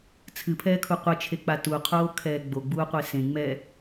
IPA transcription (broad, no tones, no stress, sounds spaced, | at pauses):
t͡sʰ ɨ pʰ ɛː kʰ u qʷ ɨ t͡ʃʰ e k͡p a t u qʰ oː kʰ ɛː ɡ͡b o ɡ͡b uː qʷ e s ẽ ŋ͡m ɛ